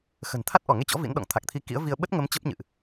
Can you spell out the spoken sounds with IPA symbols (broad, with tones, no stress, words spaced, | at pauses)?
xə̤˨˩n t̪ʰa˦˥t̚ʔɔ˧˩ŋe˧t͡ɕɔ̰˧˥ vḭ˧˥nɗɔ̰˧˨ŋt̪ʰa˨˩k̚t̪ʰi˧ kḭ˧˥ə̯vi˧ə̯ ɓə˦˥t̚ŋə˨˦m t͡ɕə˦˥p̚ɲɨ̰˧˨ʔ